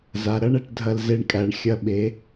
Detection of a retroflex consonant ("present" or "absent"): present